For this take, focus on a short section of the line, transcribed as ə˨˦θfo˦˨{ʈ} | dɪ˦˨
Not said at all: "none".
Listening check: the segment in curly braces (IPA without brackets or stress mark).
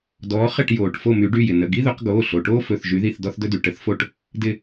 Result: ʈ